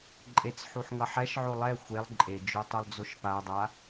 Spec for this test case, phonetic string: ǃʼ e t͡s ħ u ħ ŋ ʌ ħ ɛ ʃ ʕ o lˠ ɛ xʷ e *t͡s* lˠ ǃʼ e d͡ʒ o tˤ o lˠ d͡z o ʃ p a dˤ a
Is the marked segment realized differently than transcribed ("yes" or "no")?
yes